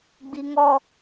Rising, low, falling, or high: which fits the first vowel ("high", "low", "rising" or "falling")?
low